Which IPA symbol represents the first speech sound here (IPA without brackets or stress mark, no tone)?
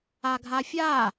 a